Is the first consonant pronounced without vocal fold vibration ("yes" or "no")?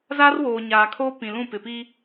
no